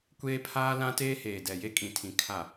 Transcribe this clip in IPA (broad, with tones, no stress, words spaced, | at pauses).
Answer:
kʷeː˦pʰaː˦ lã˦teː˦heː˨ dɛ˨je˦kʼĩ˨tʰĩ˨ kʰa˨